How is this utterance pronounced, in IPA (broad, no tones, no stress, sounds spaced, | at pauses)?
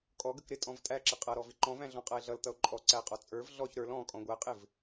kʼ ɔ ɡ ə k ɾ ɪ tʼ ɔ̃ v tʼ æ ǁ ɪ qʼ ʌ ɾ ɔ v ɪ ǃ ɔ̃ v æ̃ ɮ ɔ̃ qʼ ʌ e̯ ɮ ʌ l t ʌ o̯ ǃʼ ɔ ǀ æ qʼ ɔ t͡sʼ ə˞ v ɮ ɔ ç ɾ ə˞ l ɔ̃ kʼ ɔ̃ ɡʷ æ qʼ ɪ v